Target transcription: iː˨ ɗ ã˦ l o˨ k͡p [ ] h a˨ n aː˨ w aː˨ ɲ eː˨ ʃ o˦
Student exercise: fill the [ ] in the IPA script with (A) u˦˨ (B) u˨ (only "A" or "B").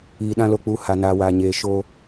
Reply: A